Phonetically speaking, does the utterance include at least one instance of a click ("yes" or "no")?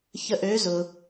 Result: no